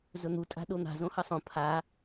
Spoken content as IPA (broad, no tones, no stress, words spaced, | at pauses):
zɵn̪u tʼa̤ɗon̪a̤ zõhɐsˤõ pʰa